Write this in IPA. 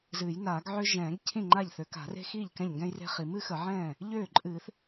z ɨː˨˩˦ j n aː˨˩˦ ɡ ʕ ø˥ ʒ ɛ̃ː˨˩˦ ɡ cʰ ĩ˥˩ ŋ͡ǃ a˥˩ ʎ θ ø˨˩˦ k a̤˨˩˦ r e̤˥ x iː˥˩ ʎ k ɛ̃˥˩ ʎ ŋ ɡ ɛ̃˥ j r e̤˥ χ i˨˩˦ m ɨ˥ x ə˨˩˦ ʕ ɛ̃ː˥˩ | ʎ øː˥˩ ǃʼ ɨː˨˩˦ θ

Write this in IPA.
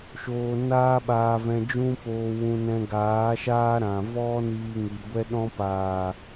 ʃ oː˧ n aː˦ ɓ aː˧ v ɛ̃˧ d͡ʒ ũ˦ p oː˧ w ũ˧ n ɛ̃˧ ɡ aː˨˦ ʃ aː˦ ɾ ã˨ v ɔ˦ n iː˧ ŋ i˨ ɡʷ ɛ˧ ɗ ɔ̃˧ p aː˨

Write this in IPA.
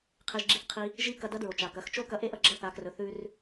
qʰ e˧ ʒ ɡ͡ǁ i˧ θ qʰ i˧ | ʒ i˥ k ɐ˧ d ɐ˧˥ d ɹ o˩ t͡ʃ a˩ k ɐ˩˧ x t͡ʃ o˥ k ɐ˧ ʔ e˥ ʔ ɐ˧ ɡ͡ǁ ɐ˧˥ θ a˩˧ k r ɵ˩˧ θ ʉ˧ r

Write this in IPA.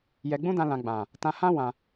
j ɛ˧ ɡ͡b ũ˦ d ã˧ l ã˨ ɡ͡b ã˨ | t ã˧ h ã˦ w ã˧

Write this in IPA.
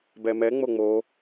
b ɛ m ɛ ŋ͡m o ŋ͡m o

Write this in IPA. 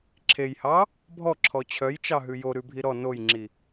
ǁʰ e j h ɑ | bʱ ɔ ǁʰ ɔ t͡ɕʰ œ j t͡ʃ ɑ ɦ ʉ j o ɾ ʉ bʱ i ɾ ɔ n o j ŋ͡ǁ i

